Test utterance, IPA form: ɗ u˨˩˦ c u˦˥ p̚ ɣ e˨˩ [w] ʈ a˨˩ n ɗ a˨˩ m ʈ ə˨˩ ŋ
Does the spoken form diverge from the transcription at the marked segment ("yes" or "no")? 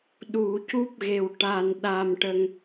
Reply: no